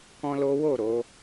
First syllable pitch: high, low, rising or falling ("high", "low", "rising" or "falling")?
high